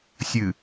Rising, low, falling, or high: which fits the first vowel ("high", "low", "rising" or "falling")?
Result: low